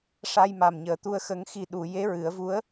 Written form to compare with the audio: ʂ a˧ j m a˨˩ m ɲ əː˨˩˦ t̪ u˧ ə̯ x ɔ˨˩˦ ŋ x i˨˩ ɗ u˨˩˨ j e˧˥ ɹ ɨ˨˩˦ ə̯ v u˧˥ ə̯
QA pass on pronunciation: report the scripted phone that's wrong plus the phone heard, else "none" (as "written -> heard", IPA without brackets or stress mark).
ɔ˨˩˦ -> ə˨˩˦